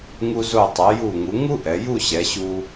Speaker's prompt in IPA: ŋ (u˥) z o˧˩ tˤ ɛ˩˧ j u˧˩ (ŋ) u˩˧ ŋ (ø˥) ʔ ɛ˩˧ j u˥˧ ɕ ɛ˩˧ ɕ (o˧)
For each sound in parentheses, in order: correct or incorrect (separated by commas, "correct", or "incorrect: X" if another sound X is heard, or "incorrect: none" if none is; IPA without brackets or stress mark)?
incorrect: u˧, correct, incorrect: u˥, incorrect: u˧